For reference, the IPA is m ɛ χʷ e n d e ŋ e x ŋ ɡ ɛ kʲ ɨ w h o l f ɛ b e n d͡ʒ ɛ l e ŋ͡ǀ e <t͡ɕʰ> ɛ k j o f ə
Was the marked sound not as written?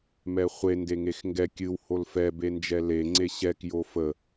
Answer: yes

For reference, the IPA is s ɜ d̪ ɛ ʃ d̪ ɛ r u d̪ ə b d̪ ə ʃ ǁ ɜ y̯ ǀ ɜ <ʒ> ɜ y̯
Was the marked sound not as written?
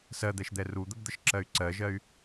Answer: no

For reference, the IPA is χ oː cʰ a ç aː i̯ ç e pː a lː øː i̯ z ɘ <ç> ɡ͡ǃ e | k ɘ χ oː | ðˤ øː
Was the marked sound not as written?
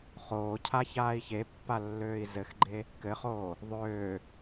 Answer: yes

